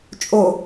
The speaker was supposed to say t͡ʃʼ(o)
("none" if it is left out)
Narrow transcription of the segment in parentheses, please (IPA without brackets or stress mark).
o